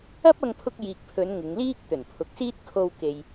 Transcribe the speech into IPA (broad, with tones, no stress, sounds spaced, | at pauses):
ɐ˥ p̚ ɐ˧ ŋ pʰ ʊ˧ k̚ j iː˨ k̚ pʰ ɵ˨˧ n ŋ ɪ˨˧ ŋ l iː˥ k̚ t̪ ɵ˨˩ n pʰ ʊ˨ k̚ s iː˥ t̚ kʰ o˧ w k e˨ j